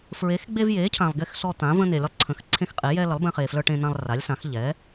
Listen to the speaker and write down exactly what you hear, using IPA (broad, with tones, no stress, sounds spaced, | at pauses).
f ɹ e˨˥ x ɡ͡b e˦ v j eː˨˥ cʰ ã˨ lˠ ɡ e˦ x s ɔ˦ t̪ ã˨˥ v ə̃ː˦ n̪ e˨ lʲ ə˦ lˠ ǀʰ ə̃˨˥ x ǀʰ ẽ˦ x qʼ e˨˥ j ɛː˦ l ə˨˥ lˠ b ɛ̃˦ χ eː˨ f l ə˞˦ ʈ ẽ˦ n̪ ã˦ lˠ r a˨˥ lʲ s ã˨˥ x ʎ ɛ˨˥